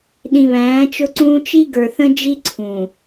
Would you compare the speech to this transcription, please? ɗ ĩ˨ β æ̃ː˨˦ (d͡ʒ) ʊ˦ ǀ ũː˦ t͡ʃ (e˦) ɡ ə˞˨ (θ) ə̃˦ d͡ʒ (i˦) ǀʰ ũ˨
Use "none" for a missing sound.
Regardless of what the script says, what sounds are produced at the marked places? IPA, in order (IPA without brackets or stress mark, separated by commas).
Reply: t͡ʃ, i˦, θ, i˦